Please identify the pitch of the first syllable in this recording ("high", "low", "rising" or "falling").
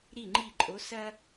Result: falling